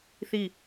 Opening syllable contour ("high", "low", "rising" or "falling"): falling